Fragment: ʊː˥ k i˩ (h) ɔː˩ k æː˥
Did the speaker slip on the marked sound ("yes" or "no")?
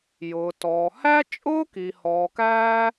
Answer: no